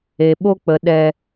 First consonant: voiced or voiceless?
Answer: voiced